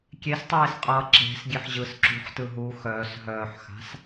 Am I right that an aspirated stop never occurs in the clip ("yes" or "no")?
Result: yes